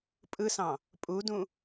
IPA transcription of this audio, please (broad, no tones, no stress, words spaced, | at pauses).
pʼɯsɑ̃ | pʼudũ